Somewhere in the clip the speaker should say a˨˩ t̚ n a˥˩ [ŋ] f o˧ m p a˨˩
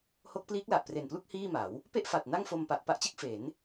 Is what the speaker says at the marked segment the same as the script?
yes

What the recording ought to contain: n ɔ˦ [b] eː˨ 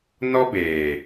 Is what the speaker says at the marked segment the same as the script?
yes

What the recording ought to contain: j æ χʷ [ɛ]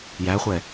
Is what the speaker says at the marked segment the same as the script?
yes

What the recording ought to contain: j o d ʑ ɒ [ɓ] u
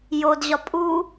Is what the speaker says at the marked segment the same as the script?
no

